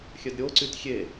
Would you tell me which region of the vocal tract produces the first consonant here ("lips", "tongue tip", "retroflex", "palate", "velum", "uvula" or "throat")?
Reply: velum